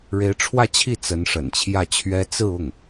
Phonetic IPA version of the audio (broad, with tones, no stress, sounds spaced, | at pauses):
ɻ e˧˥ ɪ̯ ʈ͡ʂʰ w ä˥˧ t͡ɕʰ i˥˩ t͡s ə˧˥ n ʂ ə̰˨˩ n t͡ɕʰ j ä˥˩ t͡ɕʰ ɥ ɛ˥ t͡s ɹ̩˥˧ ʊ˥˩ ŋ